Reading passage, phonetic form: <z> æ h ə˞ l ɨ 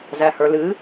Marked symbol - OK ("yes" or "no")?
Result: yes